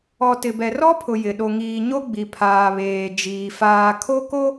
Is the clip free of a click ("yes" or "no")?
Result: yes